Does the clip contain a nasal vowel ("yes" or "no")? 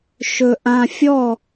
yes